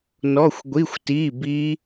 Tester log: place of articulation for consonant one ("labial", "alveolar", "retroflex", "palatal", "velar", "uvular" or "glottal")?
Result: alveolar